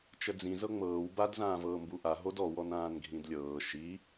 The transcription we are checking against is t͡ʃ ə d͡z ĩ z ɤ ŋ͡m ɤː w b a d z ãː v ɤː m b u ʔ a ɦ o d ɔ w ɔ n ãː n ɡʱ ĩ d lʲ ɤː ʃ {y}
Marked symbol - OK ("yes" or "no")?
no